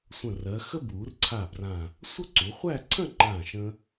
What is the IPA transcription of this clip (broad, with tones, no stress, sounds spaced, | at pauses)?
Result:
sʷ ə̃˧˩ r ɜ˩˧ x ə˥ b w u˩˧ r ǀʰ a˧˩ b r ã˧˩ | sʷ ə˥˧ ǀ u˩˧ χʷ æ˥˧ ǀʰ ə̃˥˧ ŋ͡ǃ ã˧˩ ʃ ə̃˧